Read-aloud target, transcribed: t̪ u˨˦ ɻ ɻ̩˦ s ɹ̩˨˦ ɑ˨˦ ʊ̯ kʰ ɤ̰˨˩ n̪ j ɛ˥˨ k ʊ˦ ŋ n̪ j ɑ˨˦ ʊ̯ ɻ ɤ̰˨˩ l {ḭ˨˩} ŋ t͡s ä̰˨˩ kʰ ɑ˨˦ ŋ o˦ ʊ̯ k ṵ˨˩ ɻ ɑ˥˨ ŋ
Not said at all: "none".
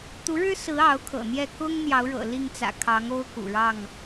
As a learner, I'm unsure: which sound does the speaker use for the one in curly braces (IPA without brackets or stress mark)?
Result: i˥˨